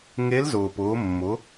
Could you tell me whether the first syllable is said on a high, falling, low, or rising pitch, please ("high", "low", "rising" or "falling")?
rising